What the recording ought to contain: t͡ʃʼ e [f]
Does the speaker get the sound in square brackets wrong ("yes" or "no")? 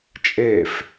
no